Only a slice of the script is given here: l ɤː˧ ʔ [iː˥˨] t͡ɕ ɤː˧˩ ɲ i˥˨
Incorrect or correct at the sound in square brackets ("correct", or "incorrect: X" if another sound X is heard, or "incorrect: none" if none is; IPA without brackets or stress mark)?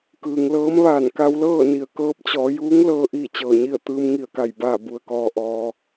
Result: correct